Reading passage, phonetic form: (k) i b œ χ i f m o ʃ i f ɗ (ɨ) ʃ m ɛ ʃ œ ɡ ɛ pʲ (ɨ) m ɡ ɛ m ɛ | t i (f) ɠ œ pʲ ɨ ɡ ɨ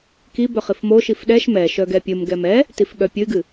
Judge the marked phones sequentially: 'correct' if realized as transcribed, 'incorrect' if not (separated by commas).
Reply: correct, incorrect, correct, correct